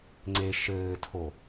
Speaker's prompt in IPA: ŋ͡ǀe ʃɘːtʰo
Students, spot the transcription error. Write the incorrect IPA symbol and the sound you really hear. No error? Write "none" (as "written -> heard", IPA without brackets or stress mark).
none